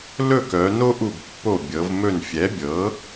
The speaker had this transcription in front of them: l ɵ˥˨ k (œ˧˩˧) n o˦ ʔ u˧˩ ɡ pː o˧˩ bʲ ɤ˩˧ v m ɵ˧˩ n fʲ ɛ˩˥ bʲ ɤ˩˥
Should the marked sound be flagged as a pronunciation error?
yes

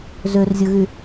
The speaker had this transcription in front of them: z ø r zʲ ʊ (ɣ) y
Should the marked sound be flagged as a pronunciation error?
no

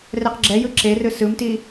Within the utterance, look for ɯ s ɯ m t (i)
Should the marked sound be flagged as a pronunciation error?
no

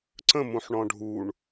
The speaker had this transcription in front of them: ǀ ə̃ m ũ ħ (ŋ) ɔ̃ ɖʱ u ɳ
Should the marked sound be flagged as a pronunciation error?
yes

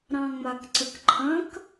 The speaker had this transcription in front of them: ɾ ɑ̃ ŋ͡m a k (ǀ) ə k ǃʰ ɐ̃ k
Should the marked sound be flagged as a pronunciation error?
no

